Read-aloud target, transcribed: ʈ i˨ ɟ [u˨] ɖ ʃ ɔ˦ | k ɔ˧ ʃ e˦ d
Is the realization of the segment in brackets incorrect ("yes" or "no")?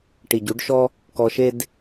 yes